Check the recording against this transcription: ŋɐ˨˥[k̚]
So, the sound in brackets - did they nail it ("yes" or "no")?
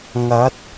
no